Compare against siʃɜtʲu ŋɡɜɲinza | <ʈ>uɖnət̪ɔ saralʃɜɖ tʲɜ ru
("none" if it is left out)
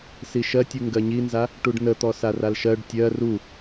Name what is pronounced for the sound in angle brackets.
ʈ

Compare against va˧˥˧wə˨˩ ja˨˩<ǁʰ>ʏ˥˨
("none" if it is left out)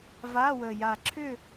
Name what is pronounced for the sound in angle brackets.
ǁʰ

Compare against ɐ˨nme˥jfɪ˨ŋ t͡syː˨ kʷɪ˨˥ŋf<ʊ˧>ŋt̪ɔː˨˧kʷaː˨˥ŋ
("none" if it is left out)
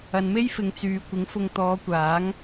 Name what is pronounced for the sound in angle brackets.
ʊ˧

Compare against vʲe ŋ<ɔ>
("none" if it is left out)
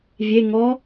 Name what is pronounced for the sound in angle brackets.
ɔ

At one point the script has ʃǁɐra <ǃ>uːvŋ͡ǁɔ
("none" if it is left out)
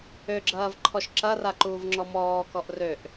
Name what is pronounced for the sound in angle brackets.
ǃ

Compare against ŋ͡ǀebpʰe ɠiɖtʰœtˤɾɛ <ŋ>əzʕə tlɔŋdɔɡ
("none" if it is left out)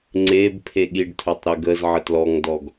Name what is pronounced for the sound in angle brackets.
ɡ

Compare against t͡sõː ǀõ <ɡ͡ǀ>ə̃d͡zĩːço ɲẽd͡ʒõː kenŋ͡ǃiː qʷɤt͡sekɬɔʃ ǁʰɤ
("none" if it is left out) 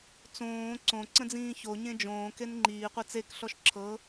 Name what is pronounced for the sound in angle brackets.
ǀ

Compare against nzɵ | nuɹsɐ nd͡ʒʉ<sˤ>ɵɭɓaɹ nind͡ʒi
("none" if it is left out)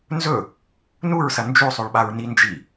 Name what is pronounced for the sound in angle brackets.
sˤ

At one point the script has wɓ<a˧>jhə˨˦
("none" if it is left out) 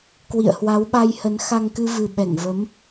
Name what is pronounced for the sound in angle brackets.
a˧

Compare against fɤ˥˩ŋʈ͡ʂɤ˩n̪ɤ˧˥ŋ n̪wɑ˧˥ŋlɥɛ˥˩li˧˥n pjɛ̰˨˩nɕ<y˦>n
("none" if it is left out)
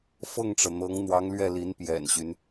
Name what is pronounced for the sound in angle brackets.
y˦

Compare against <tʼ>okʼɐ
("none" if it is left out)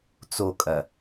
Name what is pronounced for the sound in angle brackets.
t͡s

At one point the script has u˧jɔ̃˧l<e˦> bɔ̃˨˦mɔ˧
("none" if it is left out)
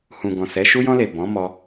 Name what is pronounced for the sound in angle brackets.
e˨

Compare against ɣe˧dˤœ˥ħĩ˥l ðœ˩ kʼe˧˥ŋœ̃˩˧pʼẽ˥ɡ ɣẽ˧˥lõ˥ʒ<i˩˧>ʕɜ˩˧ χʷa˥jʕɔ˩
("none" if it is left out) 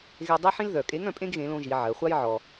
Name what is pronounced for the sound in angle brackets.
i˩˧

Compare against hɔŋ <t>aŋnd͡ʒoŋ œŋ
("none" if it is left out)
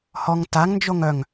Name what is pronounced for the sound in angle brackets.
t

